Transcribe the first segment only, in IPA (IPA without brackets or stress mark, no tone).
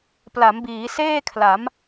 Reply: p